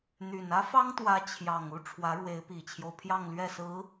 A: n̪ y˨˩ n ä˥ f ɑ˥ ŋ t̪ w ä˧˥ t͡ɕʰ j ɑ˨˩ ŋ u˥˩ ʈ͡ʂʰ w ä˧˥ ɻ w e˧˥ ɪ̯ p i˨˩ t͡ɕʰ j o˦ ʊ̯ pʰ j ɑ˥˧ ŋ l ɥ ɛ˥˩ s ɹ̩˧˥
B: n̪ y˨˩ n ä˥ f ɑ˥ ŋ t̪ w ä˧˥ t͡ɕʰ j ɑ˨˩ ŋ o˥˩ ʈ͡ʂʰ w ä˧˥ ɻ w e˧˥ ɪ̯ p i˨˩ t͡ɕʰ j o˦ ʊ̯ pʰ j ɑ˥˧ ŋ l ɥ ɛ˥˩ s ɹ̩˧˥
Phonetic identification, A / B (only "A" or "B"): A